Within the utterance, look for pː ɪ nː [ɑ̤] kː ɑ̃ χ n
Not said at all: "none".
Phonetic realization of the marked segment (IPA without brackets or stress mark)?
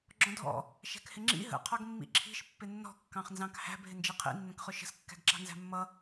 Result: ɔ̤